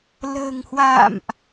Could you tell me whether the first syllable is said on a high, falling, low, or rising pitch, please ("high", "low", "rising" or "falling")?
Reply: low